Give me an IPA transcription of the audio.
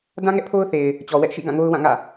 d ã˦ ŋ ɛ˦ ʔ pʰ o˦ ʊ̯ θ e˨ ɪ̯ | t͡ɕ ɔ˨ w ɛ˦ ʔ ʃ ḭ˦˨ ɡ ã˦˨ ŋ o˦ ʊ̯ w ã˦˨ ŋ ä̰˦˨

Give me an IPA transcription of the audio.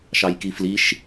ʃ ɑ j k i f l i ʃ

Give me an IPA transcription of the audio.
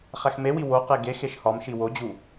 χ æ x m e w i w o q e ɡ e x e ʃ h ɒ m ʃ i w o d͡ʑ u

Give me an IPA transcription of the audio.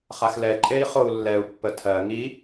χ a x l ɛ ǃʼ e i̯ χ o u̯ lː ɛ u̯ pː ə tʰ ɜ ŋ i

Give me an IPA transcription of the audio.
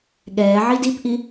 ɠ ɛː ʕ i d i p ʔ i

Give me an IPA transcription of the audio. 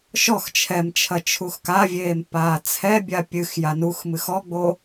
ʃ ɔ x t͡ʃʰ ɛ m t͡ʃʰ ɐ t͡ʃʰ u x k a vʲ eː m p aː t͡sʰ ɛ bʲ a pʲ ɨ x j a n u x m ɨ x ɔ ɡ͡b o

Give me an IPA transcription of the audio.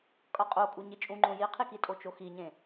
kʼ ʌ qʼ o kʼ u ɲ i t͡ʃʼ ũ ŋ͡ǃ õ j i qʰ i k i tʼ o t͡ʃ o x i ɲ ẽ

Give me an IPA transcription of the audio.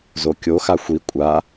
z o kʲ o x a xʷ i kʷʼ a

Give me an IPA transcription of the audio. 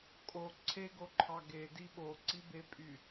kʼ o ǀʰ e ɡ o ǃʰ ɑ ɡ e d i ɓ o ǀ i b e pʼ y

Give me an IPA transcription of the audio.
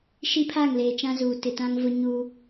ʃ i˦ pʰ a˦˨ ŋ l eː˨ t͡ʃ ã˦ z uː˨ t ɪ˨ t ã˦ ŋ v ʊ˦ ɲ uː˦

